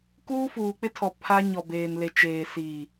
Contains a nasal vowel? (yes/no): no